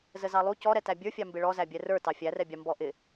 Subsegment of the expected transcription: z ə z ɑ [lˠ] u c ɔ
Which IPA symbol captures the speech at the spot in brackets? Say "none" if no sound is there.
lˠ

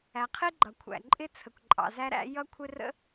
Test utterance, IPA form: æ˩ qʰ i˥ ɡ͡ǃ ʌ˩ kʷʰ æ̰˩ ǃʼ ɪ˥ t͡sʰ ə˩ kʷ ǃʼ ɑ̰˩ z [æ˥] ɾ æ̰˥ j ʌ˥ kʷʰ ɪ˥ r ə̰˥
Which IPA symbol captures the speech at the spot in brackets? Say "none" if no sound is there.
æ˥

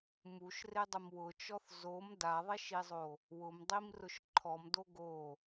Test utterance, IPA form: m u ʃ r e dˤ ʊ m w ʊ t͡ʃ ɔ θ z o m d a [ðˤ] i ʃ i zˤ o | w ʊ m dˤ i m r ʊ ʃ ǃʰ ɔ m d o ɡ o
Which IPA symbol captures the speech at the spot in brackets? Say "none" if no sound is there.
ðˤ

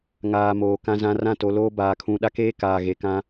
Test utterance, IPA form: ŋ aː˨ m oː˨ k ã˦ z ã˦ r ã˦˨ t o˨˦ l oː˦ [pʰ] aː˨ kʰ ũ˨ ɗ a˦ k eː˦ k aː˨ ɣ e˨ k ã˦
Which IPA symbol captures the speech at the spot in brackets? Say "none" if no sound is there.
b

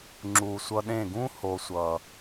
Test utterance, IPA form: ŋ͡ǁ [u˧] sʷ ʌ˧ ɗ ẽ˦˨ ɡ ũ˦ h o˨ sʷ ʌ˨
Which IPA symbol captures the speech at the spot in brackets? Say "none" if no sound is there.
u˨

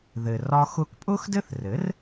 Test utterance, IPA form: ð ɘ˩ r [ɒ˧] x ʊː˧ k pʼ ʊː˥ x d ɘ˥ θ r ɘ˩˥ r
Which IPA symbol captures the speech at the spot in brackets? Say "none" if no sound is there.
ɒ˧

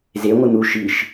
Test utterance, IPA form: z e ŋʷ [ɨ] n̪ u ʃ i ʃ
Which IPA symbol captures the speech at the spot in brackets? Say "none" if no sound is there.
ɨ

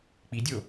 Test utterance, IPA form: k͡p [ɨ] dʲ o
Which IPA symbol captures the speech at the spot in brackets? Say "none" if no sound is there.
i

